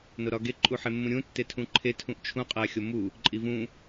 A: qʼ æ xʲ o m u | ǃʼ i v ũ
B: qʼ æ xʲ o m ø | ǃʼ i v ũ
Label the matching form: A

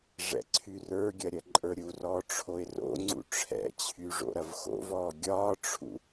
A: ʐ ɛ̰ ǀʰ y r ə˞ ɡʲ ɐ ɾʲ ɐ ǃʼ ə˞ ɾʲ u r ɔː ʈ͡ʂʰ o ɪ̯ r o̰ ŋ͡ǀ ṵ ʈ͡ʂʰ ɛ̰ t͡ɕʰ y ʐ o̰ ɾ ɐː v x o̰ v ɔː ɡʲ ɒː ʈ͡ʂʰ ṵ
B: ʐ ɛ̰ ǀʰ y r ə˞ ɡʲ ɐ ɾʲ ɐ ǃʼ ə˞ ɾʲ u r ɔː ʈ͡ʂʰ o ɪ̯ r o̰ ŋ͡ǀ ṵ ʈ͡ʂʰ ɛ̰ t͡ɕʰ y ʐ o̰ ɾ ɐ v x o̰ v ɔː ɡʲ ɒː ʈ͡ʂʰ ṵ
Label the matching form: B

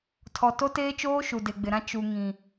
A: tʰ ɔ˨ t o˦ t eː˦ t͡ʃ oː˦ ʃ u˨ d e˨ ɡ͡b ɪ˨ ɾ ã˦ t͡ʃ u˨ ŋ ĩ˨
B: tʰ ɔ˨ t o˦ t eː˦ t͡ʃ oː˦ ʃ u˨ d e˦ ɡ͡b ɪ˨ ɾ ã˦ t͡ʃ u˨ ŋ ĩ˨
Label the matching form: A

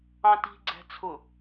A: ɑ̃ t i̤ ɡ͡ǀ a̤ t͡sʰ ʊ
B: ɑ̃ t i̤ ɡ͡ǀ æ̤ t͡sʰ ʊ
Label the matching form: B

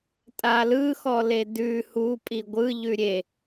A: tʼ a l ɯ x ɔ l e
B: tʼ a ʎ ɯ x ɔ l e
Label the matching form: A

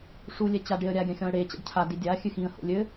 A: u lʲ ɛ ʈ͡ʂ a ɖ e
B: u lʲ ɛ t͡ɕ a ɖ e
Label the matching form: B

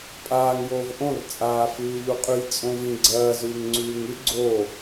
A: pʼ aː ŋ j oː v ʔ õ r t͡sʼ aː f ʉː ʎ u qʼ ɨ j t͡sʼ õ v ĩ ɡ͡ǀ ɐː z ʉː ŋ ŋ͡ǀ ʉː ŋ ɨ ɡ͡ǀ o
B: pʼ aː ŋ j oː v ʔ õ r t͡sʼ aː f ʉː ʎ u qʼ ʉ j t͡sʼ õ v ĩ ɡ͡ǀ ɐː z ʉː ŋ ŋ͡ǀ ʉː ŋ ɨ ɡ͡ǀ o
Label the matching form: B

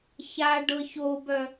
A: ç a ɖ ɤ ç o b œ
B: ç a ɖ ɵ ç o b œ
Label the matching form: A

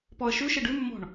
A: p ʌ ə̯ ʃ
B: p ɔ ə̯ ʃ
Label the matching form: B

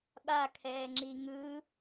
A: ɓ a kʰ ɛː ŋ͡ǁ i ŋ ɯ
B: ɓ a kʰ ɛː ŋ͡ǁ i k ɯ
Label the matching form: A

